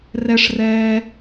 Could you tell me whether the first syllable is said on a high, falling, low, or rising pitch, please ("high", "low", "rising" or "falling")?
high